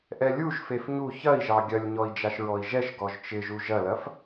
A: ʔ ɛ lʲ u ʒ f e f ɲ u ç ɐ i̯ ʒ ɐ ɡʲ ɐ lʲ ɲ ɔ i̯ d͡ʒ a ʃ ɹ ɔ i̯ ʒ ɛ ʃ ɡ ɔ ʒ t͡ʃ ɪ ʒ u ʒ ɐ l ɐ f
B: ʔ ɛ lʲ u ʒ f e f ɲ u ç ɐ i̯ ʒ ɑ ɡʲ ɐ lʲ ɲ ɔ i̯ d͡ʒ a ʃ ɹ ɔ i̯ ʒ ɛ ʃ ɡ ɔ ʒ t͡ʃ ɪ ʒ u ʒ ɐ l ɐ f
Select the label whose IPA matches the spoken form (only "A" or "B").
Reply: B